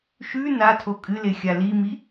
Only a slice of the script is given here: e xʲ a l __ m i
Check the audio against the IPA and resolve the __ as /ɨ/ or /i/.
i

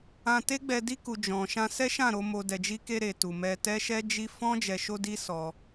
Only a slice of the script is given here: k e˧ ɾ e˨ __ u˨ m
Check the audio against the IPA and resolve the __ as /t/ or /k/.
t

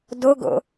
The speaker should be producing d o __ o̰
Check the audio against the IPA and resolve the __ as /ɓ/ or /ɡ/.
ɡ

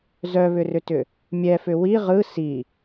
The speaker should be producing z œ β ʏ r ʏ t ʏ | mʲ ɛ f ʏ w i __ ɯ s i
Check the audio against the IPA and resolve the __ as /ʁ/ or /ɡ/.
ʁ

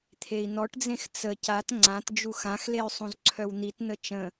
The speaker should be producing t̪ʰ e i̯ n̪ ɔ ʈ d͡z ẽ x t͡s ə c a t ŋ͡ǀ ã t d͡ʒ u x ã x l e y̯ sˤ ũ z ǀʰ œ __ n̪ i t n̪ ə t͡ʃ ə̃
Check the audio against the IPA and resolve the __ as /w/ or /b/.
w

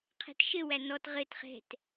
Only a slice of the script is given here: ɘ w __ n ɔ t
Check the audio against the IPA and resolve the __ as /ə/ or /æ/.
æ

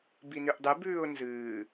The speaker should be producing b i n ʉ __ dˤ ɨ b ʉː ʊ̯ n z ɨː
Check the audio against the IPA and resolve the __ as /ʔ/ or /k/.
ʔ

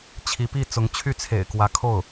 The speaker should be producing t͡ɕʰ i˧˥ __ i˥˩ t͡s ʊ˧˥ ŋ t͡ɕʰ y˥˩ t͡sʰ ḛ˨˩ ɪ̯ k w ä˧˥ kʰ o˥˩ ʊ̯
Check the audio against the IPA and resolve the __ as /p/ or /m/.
p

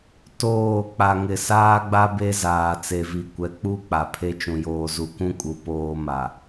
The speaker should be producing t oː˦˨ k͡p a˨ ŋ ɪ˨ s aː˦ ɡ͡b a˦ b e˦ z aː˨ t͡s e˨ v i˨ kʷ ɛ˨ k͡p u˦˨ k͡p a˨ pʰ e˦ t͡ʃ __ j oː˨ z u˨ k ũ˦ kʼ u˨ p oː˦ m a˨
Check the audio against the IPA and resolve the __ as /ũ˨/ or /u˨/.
ũ˨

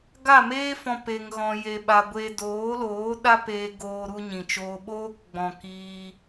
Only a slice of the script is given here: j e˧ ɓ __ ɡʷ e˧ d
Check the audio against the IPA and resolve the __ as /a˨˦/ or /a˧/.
a˧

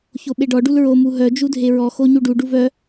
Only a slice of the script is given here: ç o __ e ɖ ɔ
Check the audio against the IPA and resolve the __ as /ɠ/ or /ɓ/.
ɓ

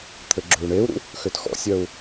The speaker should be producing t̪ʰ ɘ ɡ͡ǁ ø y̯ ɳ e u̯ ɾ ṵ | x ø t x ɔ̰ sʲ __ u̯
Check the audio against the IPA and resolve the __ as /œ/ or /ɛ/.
œ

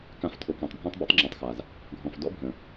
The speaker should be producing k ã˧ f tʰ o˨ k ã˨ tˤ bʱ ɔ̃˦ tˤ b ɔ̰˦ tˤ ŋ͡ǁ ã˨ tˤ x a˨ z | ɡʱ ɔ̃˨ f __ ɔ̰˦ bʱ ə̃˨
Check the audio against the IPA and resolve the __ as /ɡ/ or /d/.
d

